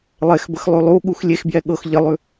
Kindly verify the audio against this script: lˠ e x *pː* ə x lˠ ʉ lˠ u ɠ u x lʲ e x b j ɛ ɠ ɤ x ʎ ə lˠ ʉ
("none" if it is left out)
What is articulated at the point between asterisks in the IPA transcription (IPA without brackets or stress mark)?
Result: b